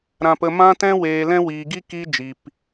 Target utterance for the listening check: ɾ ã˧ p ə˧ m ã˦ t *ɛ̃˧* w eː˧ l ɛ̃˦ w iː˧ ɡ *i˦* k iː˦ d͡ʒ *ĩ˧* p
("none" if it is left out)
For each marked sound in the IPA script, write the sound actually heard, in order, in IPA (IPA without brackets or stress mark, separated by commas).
ɛ̃˦, i˦, i˧